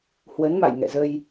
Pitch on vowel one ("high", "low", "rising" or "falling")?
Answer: rising